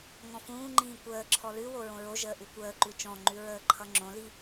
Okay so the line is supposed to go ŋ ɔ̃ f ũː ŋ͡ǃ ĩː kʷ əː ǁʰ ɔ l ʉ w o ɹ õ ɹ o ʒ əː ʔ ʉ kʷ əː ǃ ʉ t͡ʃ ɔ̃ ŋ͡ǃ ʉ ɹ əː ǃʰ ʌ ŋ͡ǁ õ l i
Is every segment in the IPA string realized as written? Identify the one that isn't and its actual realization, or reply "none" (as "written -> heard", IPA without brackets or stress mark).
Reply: none